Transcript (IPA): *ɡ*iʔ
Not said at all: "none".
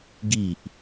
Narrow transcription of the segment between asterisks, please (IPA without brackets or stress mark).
ɡ